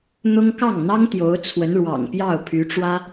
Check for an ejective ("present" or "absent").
absent